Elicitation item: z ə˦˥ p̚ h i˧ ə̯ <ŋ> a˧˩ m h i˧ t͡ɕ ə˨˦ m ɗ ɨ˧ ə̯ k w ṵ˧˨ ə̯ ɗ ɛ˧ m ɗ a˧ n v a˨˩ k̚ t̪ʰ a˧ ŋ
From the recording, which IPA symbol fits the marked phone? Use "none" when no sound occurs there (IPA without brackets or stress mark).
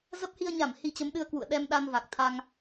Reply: ɲ